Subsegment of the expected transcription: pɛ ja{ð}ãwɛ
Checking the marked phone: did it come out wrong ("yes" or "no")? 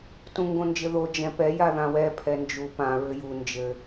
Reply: no